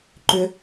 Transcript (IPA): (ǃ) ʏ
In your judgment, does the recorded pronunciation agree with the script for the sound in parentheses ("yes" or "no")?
yes